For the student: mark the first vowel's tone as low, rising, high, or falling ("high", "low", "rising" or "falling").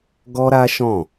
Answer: high